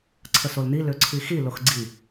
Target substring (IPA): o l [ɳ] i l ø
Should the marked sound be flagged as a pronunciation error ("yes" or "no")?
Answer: yes